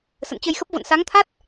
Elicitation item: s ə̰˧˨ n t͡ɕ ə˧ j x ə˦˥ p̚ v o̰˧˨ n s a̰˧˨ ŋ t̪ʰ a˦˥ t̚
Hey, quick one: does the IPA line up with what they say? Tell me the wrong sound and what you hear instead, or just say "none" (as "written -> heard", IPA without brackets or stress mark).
a̰˧˨ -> a˨˦